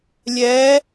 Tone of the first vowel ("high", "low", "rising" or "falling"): rising